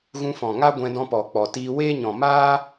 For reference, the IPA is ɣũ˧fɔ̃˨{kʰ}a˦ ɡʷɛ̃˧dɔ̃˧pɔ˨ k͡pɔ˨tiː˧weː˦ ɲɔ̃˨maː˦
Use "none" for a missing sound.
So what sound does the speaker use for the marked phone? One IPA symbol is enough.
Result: ŋ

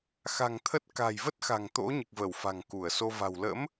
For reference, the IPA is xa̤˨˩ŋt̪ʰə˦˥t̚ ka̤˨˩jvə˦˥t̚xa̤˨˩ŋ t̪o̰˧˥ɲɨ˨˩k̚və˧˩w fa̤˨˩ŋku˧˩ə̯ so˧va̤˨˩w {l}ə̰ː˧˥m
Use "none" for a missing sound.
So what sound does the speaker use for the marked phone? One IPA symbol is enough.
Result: l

